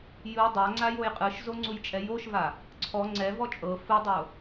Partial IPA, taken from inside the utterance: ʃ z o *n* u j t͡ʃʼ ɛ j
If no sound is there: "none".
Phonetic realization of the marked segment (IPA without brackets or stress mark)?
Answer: ŋ͡ǀ